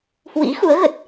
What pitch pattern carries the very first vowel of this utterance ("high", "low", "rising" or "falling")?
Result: rising